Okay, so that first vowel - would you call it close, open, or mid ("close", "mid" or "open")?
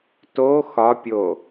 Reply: mid